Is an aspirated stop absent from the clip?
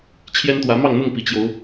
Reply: no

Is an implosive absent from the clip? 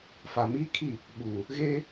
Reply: no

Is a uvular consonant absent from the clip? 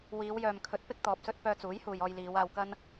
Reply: yes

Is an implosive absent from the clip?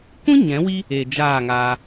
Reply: yes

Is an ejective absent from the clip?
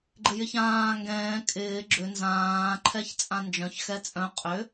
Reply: no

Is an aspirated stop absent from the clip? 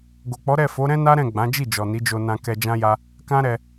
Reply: yes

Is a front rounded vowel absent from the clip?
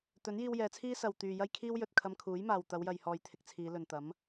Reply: no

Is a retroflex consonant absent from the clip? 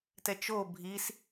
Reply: yes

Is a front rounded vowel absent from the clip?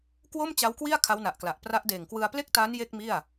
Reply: yes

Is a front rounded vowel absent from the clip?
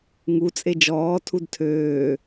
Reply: no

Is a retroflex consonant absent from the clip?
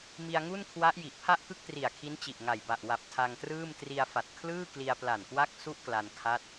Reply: yes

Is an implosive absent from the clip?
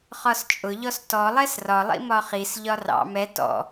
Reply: yes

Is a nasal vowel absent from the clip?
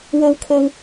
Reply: yes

